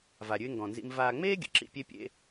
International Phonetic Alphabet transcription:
va˧ɾʲʉ˥ɪ̯ŋɡɔ̃˧nzḭ˥m vaː˧ŋ͡meː˥ɡʲə̰˩˥ ǁḭ˥pʲe˥pʲḛ˥

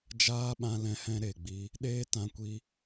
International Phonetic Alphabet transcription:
d͡ʒaː˦ɓã˧lɛ̃˧hɛ̃˧ ɾe˨ɡ͡bi˧ | ɗeː˦tã˧ kʷi˧

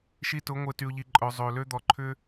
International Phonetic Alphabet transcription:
ʃi˧tʊ˨˦ ŋʷɪ˨ty˨ʊ̯ʎi˨ǃʼœ˨ zˤø˨lø˦ d̪ɔ˨ǃʰʏ˦

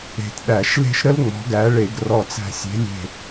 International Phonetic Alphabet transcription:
e̤˧˩tɗæ˧˩˧ʃle̤˥ʃ ɾə˥l ŋ͡mɔ̤˨˦ɡæ˨˦ɭe˧˩˧ɡ rɔ˧˩t͡sæ̤˧˩ sʲe̤˨˦lʲe̤˧˩

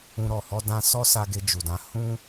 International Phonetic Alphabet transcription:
ũ˧ɾɔ˨ hɔ˧dã˧sɔ˦sa˧ ɡe˧d͡ʒu˨dã˧ hũ˦

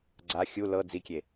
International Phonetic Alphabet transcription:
ɡ͡ǀa xʲu lɤ d͡zikʲe

